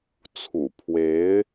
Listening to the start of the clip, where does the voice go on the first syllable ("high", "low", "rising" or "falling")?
low